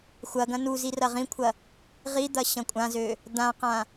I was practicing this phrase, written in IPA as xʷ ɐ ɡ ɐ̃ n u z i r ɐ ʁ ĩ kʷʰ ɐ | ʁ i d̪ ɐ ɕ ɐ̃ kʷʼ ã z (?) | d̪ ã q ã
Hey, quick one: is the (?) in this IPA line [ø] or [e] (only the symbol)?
ø